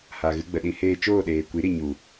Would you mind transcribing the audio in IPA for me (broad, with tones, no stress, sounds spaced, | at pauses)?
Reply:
h a˨ ɣ ɨ˧ ɡ͡b ə˨ ɗ ĩ˧ h eː˧ t͡ʃ oː˦˨ ɗ eː˨ kʷ i˨˦ ɾ i˨ ɲ u˨